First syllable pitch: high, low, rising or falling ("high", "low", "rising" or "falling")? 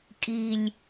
low